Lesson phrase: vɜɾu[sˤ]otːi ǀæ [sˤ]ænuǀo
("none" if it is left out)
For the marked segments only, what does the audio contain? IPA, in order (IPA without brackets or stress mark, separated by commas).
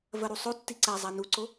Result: sˤ, zˤ